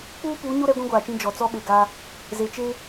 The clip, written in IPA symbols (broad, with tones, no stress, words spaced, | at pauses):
k͡puː˦puː˨˦ɲo˦ ɾɛ˦ɡʷĩ˦ɡʷaː˨t͡ʃĩ˦ d͡ʒɔ˨t͡sɔ˦ɓe˨ ɡa˦ | ze˨t͡ʃe˦